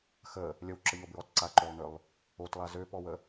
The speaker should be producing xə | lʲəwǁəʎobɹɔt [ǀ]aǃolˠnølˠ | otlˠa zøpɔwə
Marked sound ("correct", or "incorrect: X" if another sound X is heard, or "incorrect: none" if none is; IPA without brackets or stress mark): correct